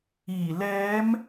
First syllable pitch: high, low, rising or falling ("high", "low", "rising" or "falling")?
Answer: low